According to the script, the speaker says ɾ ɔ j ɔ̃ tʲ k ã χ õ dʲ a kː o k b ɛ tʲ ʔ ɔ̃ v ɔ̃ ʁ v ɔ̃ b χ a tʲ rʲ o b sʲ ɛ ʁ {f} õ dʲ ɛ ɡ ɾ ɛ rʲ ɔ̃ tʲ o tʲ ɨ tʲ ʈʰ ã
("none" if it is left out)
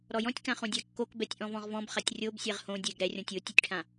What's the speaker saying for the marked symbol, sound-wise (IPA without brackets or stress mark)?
h